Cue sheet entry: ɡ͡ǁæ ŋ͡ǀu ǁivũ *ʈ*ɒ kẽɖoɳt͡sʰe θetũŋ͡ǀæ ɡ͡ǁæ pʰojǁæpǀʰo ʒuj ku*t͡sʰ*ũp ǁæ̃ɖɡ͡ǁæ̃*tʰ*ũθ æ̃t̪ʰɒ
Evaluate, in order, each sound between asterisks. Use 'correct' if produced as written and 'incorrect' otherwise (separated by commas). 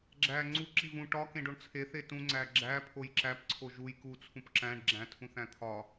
correct, correct, correct